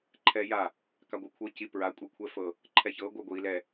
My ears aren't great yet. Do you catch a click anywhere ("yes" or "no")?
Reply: yes